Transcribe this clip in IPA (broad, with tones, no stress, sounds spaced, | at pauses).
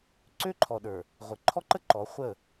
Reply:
ǀ ø˦ ǃʰ ɔ˨ ɗ ə˞˨ | ʁʷ ə˨ ǃʰ ɔ˦ ǃ ə˦ ǃ ɔ˨˦ χʷ ə˦˨